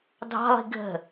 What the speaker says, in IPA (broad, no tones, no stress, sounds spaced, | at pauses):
dʱ ɑ̤ lˠ i̤ ɡʱ ə̤